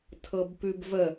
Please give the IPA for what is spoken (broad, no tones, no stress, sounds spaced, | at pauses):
tʰ ɤ b p ʉ b v ə